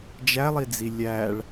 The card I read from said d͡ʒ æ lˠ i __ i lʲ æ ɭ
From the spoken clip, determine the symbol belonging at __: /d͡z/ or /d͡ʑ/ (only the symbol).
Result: d͡z